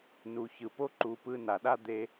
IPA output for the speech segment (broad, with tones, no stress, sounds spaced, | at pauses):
n u˨ ç ɯ˨ p o˦ ǃ u˨ p ɯ˧ n a˨ ɗ a˦ d̪ e˧